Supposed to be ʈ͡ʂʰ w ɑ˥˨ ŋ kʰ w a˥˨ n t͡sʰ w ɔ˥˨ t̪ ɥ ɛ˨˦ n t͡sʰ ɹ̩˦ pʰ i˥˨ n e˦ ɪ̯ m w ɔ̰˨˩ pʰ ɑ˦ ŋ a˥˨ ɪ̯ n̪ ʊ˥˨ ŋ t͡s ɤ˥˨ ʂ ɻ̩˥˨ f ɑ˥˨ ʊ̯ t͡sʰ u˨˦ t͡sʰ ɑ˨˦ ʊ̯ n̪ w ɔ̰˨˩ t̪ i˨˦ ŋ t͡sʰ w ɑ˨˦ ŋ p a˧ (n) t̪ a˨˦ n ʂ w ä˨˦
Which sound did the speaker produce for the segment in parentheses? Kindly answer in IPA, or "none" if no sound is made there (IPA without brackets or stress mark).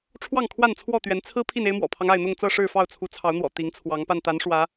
n